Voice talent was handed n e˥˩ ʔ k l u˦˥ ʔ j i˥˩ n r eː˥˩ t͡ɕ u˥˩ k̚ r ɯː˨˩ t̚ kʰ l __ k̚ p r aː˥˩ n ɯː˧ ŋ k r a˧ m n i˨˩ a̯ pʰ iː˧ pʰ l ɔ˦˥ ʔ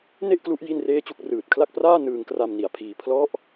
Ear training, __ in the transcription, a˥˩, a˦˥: a˥˩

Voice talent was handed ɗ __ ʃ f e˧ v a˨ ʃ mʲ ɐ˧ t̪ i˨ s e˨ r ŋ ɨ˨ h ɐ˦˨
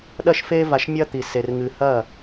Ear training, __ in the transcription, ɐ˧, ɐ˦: ɐ˧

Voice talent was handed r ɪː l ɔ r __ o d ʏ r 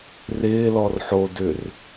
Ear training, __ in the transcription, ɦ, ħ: ħ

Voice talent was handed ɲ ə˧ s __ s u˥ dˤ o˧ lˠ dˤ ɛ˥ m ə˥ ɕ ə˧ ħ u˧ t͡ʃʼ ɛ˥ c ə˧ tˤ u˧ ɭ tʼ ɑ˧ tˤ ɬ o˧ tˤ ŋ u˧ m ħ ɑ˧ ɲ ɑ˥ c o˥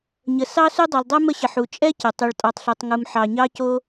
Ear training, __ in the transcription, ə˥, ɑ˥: ɑ˥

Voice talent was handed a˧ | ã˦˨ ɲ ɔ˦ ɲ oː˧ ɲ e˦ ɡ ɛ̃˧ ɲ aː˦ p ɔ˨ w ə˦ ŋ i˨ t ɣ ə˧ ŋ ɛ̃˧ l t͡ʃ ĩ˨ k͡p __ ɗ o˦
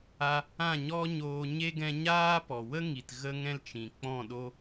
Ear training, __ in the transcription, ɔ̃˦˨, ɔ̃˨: ɔ̃˦˨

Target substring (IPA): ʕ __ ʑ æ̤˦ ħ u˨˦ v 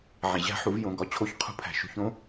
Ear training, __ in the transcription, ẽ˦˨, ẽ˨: ẽ˨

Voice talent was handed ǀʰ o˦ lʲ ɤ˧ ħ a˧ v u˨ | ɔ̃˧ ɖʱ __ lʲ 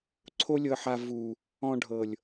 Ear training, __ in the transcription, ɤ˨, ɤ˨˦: ɤ˨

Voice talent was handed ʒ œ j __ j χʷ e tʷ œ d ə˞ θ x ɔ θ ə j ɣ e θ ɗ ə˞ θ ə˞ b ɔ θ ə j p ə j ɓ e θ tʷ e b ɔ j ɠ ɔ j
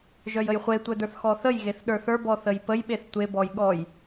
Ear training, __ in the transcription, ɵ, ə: ə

